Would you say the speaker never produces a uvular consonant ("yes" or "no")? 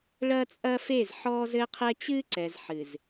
no